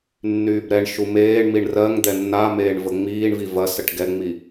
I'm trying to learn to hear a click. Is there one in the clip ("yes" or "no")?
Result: no